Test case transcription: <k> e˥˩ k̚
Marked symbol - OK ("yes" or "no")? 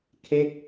no